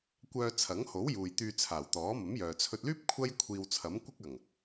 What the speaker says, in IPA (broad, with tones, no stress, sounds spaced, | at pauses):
kʷ œː˧ t͡sʰ ɐ˨˥ ŋ h o˨˥ w j uː˨ j t̪ yː˧ t͡sʰ aː˨˩ w t̪ ɔː˨˥ m ɐ˨˥ m j œː˨ t͡sʰ ɵ˧ t̚ l yː˥ p̚ kʷʰ ɐ˥ j kʷʰ iː˧ w t͡sʰ ɐ˨˥ m kʷ ɪ˥ k̚ ɐ˨˩ ŋ